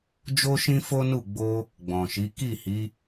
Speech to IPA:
d͡ʒ o˦ ʃ ĩ˦ f o˦ n u˦˨ ɡ͡b o˧ | ɡ͡b ɔ̃˨ ʃ i˨˦ k i˦˨ h i˨˦

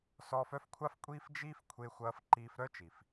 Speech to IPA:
s ɔː˧ f œ˦ f kʷʰ a˦ f kʷʼ iː˦ f d͡ʒ iː˦ f kʷʰ e˧ xʷ ɐː˧ f ǃ iː˧ f ɾ œ˦ t͡ʃ i˨ f

